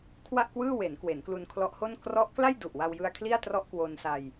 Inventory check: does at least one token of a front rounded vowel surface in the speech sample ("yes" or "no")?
no